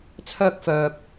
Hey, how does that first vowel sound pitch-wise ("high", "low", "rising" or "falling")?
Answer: high